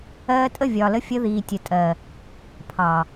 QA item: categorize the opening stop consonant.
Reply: ejective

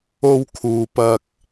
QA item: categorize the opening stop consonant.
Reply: aspirated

